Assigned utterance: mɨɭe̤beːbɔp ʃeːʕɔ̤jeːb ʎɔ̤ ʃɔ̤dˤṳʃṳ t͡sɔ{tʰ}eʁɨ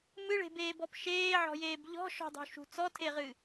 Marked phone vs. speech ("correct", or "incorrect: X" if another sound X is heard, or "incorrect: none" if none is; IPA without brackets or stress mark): correct